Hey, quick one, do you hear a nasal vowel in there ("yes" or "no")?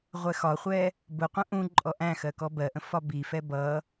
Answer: yes